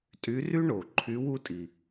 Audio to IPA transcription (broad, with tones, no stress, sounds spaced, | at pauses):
tʼ y˧˥ r y˥ ɳ o˨˩ ǃʰ y˧˥ w u˥ tʼ i˨˩